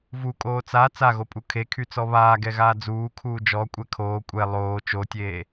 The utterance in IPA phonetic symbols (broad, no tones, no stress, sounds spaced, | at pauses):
v u kʼ oː t͡s a t͡s a ɣ o pʼ u kʰ e kʰ y t͡s ɔ β aː ɡ ɛ ɣ aː d͡z uː kʰ uː d͡ʒ ɔ kʷʼ ɛ kʰ oː kʷʼ ɛ lˠ oː t͡ʃ o tʲ eː